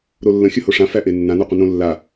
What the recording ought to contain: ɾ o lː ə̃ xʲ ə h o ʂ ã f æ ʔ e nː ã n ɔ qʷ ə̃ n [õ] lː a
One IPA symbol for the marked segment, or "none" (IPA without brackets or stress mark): õ